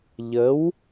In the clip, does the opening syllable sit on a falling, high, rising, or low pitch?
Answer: rising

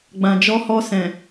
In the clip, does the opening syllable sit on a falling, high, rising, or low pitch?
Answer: low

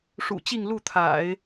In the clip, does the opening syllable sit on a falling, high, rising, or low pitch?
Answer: low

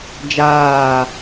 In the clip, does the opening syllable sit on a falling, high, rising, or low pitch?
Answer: falling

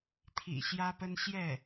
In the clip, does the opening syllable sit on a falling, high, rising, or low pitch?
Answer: low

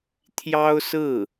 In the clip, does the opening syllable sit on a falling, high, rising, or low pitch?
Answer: high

